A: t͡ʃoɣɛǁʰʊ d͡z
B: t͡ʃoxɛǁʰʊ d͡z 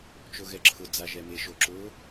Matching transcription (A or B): A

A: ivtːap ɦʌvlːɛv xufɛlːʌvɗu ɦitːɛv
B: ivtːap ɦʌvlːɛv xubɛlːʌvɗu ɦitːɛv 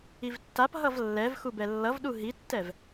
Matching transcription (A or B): B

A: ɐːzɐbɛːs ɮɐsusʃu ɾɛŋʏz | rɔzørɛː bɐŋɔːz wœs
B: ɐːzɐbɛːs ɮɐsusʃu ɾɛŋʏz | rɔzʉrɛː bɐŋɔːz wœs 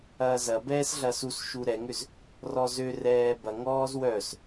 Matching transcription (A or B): A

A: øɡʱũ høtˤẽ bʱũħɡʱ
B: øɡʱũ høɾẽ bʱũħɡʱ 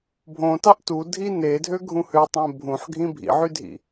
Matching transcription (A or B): A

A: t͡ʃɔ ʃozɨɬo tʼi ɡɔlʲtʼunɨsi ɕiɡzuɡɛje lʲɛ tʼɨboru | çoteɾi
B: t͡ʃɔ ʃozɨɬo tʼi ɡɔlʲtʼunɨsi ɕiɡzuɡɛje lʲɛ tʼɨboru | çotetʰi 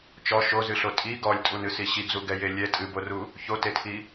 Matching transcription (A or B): B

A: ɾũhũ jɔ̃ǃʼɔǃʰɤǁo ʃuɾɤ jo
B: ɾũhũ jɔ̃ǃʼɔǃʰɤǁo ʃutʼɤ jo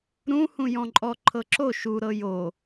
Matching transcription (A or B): A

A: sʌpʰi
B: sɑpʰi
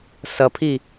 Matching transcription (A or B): A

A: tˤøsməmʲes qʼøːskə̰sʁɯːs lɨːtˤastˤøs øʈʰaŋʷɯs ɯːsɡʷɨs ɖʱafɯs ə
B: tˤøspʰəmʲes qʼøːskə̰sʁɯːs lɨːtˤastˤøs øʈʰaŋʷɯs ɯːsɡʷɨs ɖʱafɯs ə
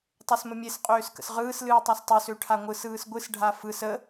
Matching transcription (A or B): A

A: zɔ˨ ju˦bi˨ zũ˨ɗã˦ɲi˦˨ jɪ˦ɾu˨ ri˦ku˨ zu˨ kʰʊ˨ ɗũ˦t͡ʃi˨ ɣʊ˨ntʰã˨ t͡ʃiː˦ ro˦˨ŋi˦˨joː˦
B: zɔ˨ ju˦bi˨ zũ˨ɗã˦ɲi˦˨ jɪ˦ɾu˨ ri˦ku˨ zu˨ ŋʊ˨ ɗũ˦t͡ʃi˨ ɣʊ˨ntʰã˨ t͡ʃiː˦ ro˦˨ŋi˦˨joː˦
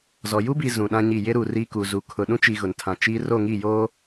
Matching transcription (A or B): A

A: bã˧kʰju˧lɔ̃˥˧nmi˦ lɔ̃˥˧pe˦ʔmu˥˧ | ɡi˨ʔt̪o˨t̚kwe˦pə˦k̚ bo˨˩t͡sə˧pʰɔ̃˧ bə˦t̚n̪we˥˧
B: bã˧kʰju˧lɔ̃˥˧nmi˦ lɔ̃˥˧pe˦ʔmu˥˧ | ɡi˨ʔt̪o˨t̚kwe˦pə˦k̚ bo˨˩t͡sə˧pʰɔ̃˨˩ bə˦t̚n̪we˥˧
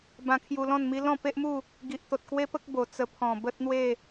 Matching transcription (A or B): B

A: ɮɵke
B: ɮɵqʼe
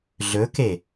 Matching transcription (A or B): A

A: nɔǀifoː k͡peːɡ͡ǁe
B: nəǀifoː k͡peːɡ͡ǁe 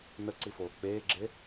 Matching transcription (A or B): B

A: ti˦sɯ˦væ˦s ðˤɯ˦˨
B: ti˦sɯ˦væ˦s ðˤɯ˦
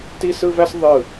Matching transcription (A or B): A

